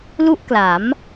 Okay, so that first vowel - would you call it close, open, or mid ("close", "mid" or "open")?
close